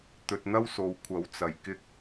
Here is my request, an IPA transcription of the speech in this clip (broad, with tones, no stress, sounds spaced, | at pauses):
t̪ ɵ˧ t̚ n̪ ɐ˥ w s o˨˧ w kʷʰ ɐ˨˥ w t͡s ɐ˨˩ j k ɪ˥ k̚